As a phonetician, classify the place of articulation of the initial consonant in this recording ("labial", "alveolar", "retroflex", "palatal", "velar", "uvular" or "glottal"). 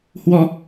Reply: glottal